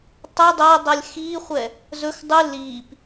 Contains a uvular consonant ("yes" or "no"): yes